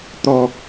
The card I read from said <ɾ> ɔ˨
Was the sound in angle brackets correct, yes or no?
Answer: no